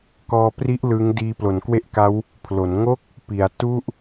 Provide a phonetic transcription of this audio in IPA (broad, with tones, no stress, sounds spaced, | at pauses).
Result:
k ɔː˧ p r i˦˥ ʔ l ɯ˦˥ ŋ d iː˧ p l o˩˦ n k w e˥˩ ʔ k a˦˥ w | pʰ l o˩˦ n ŋ o˥˩ k̚ | p i˩˦ a̯ t u˥˩ ʔ